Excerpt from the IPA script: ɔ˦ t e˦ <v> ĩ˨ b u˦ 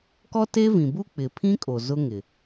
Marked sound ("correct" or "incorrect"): correct